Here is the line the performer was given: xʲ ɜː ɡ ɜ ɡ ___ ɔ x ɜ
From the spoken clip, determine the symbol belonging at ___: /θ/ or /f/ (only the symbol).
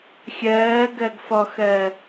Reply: f